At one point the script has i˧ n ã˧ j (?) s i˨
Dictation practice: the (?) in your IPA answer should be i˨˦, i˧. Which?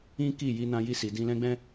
i˧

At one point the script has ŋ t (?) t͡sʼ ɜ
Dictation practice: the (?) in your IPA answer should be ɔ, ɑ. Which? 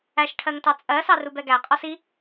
ɑ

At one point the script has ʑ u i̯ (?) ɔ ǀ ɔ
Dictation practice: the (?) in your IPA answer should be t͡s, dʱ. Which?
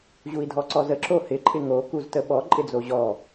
dʱ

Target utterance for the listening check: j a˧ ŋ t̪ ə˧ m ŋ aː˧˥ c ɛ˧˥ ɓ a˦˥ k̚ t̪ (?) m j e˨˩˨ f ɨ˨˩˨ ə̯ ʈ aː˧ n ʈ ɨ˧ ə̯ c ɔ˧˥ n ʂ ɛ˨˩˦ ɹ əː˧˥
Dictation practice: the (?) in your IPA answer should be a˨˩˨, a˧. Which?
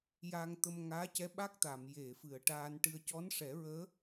a˨˩˨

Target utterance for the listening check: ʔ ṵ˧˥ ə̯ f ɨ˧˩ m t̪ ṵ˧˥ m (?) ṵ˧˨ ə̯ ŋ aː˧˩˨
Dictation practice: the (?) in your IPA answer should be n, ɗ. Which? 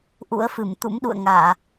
ɗ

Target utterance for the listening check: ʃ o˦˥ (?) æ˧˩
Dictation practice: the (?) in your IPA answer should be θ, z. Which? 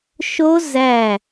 z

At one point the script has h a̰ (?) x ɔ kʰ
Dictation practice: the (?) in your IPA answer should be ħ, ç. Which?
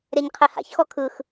ç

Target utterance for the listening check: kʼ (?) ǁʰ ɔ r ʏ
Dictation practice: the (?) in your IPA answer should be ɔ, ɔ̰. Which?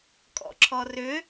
ɔ̰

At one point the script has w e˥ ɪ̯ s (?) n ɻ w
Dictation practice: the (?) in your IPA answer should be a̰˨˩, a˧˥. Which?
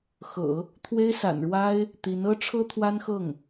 a̰˨˩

